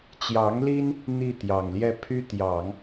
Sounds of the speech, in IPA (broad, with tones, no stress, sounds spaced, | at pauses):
t͡ɕ j ɑ˧˥ ŋ l i˥ n | n̪ i˥˩ t̪ j ɑ˨˩ ŋ l j ɛ˥˩ pʰ y˥ t̪ j ɑ˨˩˦ ŋ